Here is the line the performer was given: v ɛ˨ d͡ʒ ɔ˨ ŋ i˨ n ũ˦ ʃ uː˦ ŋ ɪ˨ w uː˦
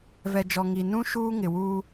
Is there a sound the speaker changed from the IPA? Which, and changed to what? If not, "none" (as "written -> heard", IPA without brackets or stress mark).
none